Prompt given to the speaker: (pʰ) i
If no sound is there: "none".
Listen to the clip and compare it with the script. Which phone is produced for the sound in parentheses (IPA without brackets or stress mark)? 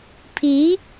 pʰ